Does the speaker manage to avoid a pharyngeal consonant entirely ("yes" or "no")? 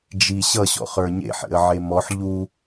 no